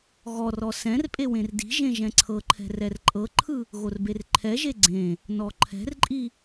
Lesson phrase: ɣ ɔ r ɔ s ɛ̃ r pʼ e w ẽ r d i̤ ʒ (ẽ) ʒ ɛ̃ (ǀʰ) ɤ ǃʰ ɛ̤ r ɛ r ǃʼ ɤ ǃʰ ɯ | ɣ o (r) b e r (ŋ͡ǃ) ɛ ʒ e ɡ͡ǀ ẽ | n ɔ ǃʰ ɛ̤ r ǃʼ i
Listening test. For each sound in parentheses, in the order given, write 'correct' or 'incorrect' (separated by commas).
correct, correct, correct, incorrect